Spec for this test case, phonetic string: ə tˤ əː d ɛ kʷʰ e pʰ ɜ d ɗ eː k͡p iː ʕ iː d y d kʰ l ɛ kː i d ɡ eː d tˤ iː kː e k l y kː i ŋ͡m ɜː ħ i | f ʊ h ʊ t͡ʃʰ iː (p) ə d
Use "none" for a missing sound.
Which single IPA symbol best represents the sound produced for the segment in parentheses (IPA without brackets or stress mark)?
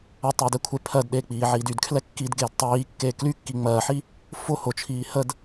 h